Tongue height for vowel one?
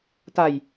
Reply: low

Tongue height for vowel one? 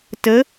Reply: mid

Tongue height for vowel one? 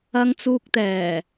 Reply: low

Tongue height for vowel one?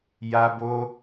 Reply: low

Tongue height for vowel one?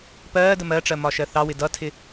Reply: mid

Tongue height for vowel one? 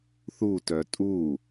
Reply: high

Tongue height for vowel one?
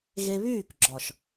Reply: mid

